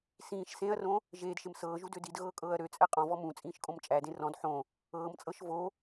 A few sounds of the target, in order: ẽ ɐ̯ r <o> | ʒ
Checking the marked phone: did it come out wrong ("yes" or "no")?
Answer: yes